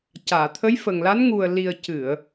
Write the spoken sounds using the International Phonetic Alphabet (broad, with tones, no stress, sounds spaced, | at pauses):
c aː˨˩˨ t̪ʰ ə˧˥ j f ə˨˩ ŋ l a˧˥ n ŋ u˨˩ ə̯ l i˨˩ ə̯ c ɨ˨˩˨ ə̯